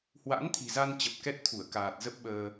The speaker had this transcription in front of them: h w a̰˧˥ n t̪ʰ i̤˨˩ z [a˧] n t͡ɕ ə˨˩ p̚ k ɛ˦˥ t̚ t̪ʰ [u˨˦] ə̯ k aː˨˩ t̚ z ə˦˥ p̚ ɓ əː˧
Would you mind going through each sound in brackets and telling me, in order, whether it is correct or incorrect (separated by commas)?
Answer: correct, incorrect